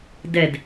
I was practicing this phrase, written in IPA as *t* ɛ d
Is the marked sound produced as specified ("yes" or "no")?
no